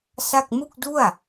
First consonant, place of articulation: alveolar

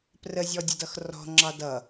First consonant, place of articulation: labial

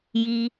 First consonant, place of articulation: palatal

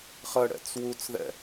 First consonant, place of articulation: uvular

